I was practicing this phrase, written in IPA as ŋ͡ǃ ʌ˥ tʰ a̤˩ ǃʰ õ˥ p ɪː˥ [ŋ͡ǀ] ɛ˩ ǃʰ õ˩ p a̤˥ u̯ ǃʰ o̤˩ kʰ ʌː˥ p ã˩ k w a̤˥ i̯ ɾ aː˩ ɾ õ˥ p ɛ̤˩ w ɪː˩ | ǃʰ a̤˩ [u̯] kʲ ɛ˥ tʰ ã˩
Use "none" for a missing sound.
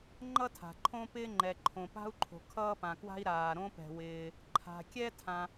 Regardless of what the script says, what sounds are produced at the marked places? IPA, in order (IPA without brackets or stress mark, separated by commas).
ŋ͡ǃ, none